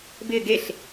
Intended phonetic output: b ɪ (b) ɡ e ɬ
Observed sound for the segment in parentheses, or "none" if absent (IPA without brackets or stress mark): none